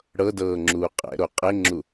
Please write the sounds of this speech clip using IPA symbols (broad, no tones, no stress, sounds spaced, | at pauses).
ɽ ɤ d ɤː ŋ͡ǁ uː qʼ ɛ̰ ɾ o qʼ e ŋ͡ǁ u